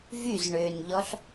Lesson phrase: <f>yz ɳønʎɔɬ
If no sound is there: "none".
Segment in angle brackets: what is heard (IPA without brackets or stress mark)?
v